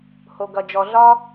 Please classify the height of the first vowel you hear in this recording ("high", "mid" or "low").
mid